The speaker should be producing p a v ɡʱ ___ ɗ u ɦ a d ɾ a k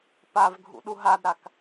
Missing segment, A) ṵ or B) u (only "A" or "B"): A